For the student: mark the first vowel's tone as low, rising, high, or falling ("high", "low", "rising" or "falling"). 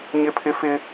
high